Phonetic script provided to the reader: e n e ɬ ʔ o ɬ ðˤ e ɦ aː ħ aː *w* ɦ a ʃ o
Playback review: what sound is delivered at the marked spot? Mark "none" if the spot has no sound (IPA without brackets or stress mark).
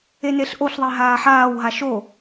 w